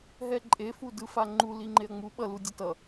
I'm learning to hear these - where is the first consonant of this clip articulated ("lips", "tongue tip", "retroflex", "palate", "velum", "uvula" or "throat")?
throat